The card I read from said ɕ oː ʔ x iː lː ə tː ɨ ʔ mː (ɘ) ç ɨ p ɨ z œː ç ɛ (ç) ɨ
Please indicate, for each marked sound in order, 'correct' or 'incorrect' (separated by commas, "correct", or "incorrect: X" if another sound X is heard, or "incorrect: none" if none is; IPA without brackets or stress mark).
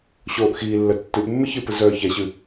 correct, incorrect: ɕ